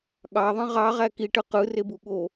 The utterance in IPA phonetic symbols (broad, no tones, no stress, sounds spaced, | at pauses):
ɠ ɑ ðˤ ĩ ʁ ɑ ʁ æ k i ʈ ɯ q ɯ r e b u ɠ o